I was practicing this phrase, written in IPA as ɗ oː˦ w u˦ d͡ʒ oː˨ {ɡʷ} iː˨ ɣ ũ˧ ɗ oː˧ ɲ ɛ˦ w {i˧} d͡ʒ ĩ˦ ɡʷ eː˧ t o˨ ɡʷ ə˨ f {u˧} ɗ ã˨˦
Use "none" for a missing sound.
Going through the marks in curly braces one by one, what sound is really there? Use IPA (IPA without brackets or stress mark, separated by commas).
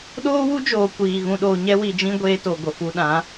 kʷ, i˧, u˧